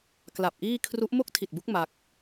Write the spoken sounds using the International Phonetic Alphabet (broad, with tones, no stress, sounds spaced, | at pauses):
k l a˨˩ p̚ ʔ iː˥˩ kʰ r u˦˥ ʔ m o˥˩ k̚ tʰ i˨˩ t̚ b u˦˥ k̚ m a˦˥ k̚